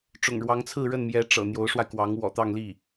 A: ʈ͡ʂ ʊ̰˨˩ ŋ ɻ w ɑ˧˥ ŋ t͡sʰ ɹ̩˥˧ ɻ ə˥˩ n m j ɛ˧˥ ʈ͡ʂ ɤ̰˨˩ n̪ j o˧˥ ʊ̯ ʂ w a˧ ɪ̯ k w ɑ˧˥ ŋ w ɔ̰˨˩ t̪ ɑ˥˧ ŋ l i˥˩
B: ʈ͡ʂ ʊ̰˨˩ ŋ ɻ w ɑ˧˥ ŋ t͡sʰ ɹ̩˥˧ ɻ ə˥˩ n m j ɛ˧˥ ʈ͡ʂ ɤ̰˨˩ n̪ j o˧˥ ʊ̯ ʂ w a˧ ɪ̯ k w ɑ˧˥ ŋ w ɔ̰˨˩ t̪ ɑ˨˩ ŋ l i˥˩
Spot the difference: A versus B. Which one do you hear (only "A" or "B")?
A